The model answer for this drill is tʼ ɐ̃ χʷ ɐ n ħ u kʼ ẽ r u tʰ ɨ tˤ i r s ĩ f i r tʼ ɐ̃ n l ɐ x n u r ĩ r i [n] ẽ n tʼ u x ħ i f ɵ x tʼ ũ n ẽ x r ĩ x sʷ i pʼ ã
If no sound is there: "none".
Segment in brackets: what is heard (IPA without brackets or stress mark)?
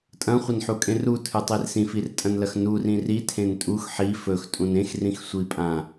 tʰ